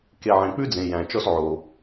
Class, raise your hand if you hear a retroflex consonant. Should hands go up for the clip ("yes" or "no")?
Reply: no